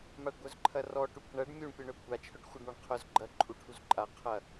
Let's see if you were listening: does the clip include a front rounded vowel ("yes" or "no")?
yes